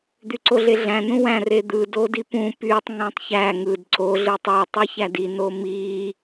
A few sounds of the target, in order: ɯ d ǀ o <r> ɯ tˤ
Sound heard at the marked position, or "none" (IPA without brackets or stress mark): ɮ